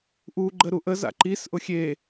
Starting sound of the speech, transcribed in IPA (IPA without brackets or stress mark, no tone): ʔ